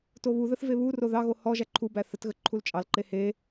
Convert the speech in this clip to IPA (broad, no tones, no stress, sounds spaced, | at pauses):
t o β u ð ə θ v e β u r o ð ɑ ɣ o h ɔ ʒ æ ǃʰ u b æ θ ə t ɣ ə ǃʰ u l t͡ʃʼ ɑ l ǃ e h e